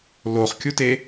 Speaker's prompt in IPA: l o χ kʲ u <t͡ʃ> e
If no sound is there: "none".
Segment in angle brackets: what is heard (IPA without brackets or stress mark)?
t